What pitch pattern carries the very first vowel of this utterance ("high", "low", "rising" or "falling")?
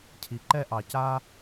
low